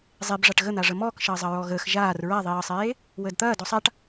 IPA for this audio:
zˤ e b ʐ a ʈ ɣ ə n̪ a ʐ ə m ɔː k ʃ ɐː zˤ ɐ ɹ ɔ ɣ əː x ʒ aː r ɹ a ðˤ iː ə̯ sˤ eː | w əː d t̪ ɐː d ɔ sˤ a ʈ

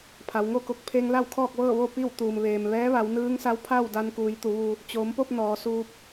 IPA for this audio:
pʰ a˩˧ w ŋ o˥˨ k o˧ k̚ pʰ eː˧ ŋ l a˥˨ w kʰ ɔː˥˨ k̚ ʋ ɤː˥˨ ʋ o˥˨ p i˥˨ w t̪ uː˩ m ʋ eː˩ m ʋ ɛː˧˥ ʋ a˩˧ w n ɯː˧˥ ŋ s a˧˥ w pʰ a˥˨ w d a˧ n k uː˩˧ j t̪ u˩˧ ʋ u˧ | t͡ɕ oː˩˧ m p o˥˨ p̚ n ɔː˩˧ s uː˧ p̚

